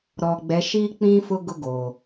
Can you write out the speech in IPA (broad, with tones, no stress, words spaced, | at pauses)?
ɾɔ˨ɡ͡bɛ˨˦ʃiː˦k͡pĩ˦ fʊ˦ ɡʊ˦ɡoː˨